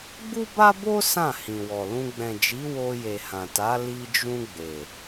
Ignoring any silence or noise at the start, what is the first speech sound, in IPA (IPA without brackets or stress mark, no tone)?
ɡ͡b